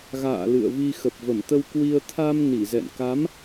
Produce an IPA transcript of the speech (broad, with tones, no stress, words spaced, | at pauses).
ɣa̰ː˧˨ lɨ̰˧˨ə̯vi˧ xə˨˩p̚və˧˩mt̪ə˧wkwi˧ə̯ t̪ʰa˧m ni˧˩zɛ̰˧˨nka˨˦m